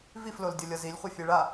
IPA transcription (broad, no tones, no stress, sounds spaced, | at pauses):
v i f l o l dʲ ʌ lʲ ʌ z i lʲ χʷ ɛ fʲ e ɭ a